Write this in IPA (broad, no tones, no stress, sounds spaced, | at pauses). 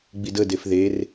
ɡ͡b i d ə d e f ð e r